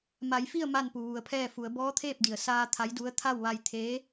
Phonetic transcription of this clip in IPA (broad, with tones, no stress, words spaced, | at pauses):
ma˩˧jfi˥˨ə̯ ma˥˨npu˩ʋu˩˧ə̯pʰɛː˥˨ fu˩˧ə̯ bɔː˧˥t̪ʰeː˥˨p̚di˩ə̯ saː˧ t̪ʰa˧˥jdu˧˥ə̯ t̪ʰa˥˨wʋa˧j t̪ʰeː˧˥